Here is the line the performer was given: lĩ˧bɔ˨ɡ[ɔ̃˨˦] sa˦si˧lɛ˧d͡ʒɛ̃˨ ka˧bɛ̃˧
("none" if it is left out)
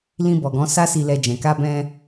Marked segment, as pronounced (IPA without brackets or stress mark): ɔ̃˨˦